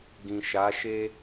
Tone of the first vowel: low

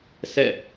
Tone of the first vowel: falling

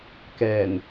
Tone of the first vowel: low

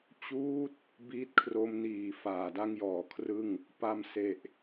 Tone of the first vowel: falling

